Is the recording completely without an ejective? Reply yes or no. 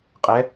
no